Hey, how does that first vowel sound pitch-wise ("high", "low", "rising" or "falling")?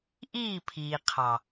falling